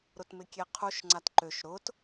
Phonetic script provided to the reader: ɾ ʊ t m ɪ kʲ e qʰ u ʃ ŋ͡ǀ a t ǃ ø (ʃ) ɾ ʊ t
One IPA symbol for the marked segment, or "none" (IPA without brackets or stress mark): ʃ